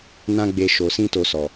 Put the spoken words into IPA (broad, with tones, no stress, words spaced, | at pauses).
nã˦ɡ͡be˧ ʃo˨sĩ˧ to˧sɔ˨